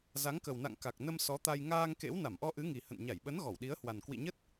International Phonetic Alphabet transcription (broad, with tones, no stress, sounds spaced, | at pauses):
z a˨˦ ŋ k ə˨˩ w n a̰˧˨ ŋ k a˨˩ k̚ n ə˧ m s ɔ˨˦ t̪ a˧ j ŋ aː˧ ŋ k ḛ˧˥ w n a˧˩ m ʔ ɔ˧ ʔ ɨ˨˦ ŋ i˨˩ h ə̰˧˨ n ɲ a˧˩ j ɓ ə˨˦ n ɣ ɔ˧˩ w ɗ i˨˦ ə̯ h w a˨˩ n k w ḭ˧˨ ɲ ə˦˥ t̚